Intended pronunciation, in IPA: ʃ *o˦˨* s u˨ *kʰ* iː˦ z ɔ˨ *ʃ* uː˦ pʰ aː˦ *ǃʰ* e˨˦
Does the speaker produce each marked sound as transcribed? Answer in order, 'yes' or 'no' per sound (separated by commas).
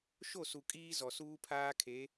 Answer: yes, no, no, no